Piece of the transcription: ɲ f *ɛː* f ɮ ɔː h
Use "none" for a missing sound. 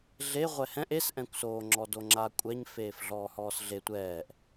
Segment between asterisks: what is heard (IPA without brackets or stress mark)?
eː